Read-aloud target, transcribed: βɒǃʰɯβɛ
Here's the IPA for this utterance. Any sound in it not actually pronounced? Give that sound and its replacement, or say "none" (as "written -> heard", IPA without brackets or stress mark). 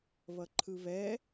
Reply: ɒ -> ʌ